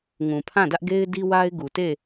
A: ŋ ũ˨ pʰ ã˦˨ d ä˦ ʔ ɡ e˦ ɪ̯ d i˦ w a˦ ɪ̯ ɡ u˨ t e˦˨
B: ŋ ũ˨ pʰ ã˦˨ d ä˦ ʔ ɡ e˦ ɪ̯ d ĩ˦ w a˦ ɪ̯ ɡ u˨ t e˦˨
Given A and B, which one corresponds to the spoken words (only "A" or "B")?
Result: A